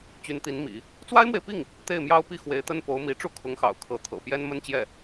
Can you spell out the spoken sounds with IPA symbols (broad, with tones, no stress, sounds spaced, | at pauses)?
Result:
t͡ɕ y˧˥ n t̪ i˧˥ n m ḭ˨˩˦ | t͡s w a˥ ɪ̯ m w e˨ ɪ̯ p i˥˩ ŋ | t̪ e˥˩ ɪ̯ m j ɑ˥ ʊ̯ p i˥˩ x w e˧˥ ɪ̯ t̪ ə˥ n p o˧˥ ʊ̯ m i˧˥ ʈ͡ʂ u˥˩ kʰ ʊ˧˥ ŋ x ɑ̰˨˩ ʊ̯ kʰ ɤ˧˥ t̪ʰ ɤ̰˨˩ p j ɛ˥ n m ə˥ n t͡ɕ j ɛ˥˩